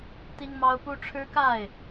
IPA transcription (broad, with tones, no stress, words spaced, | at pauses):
t̪i˦ŋmɑ˦ʊ̯pu˦ ʈ͡ʂʰɻ̩˦ka˥˨ɪ̯